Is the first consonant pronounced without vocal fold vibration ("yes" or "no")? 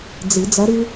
no